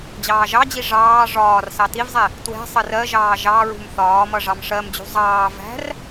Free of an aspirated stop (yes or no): yes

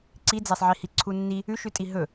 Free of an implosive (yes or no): yes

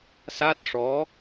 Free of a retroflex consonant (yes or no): no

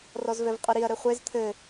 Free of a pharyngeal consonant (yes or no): yes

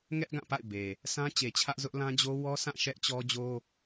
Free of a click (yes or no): yes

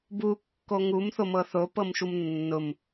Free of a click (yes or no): yes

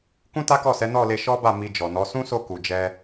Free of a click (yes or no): yes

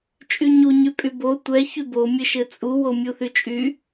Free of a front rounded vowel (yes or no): no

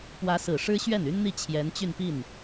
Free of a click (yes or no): yes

